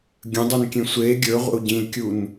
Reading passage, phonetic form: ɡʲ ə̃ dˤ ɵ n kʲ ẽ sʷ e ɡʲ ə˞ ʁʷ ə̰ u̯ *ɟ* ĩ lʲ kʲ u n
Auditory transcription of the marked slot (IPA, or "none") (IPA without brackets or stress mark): ɟ